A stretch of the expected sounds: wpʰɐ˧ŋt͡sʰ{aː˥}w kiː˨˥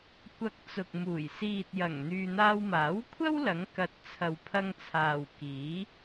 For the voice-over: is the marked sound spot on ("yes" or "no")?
no